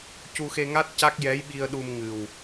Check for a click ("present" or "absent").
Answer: absent